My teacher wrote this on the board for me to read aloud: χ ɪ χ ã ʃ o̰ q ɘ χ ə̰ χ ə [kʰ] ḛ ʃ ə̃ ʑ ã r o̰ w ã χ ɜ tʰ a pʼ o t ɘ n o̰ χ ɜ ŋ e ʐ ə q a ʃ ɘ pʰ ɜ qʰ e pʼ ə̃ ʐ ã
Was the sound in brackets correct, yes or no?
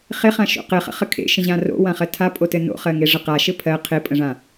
yes